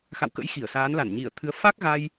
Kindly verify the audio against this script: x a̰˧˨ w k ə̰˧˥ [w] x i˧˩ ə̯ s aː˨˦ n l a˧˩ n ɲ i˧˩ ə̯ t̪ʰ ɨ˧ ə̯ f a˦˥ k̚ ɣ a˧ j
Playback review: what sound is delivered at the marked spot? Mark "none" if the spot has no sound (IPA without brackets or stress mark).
j